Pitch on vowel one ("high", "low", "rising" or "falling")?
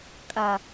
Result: low